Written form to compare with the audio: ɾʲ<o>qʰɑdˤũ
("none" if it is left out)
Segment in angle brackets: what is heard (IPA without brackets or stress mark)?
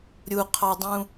u